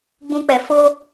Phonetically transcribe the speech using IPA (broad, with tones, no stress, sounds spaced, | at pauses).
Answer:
ɡ͡b ũ˧ k͡p ɛ˨ f o˦